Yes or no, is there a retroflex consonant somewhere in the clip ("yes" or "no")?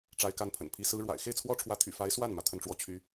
yes